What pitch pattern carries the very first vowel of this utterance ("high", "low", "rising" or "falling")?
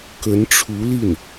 rising